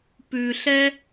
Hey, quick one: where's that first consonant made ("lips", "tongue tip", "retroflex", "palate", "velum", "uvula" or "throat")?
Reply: lips